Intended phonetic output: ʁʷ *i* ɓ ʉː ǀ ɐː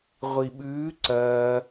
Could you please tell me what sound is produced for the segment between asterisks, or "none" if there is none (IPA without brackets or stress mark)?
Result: i